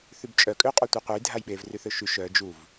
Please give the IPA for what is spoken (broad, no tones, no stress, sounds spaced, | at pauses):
θ y b t͡ʃʼ œ kʼ ø qʼ o tʷ œ qʷ œ j dʱ a j ɓ e v r y θ ø ʃ y ʃ œ d͡ʒ u v